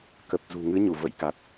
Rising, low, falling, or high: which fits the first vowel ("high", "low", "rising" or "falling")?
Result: low